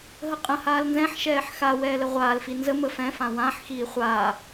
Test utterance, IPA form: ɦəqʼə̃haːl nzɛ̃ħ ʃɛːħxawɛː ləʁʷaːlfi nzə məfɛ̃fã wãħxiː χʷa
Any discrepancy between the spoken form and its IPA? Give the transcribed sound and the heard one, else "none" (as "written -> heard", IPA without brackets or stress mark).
none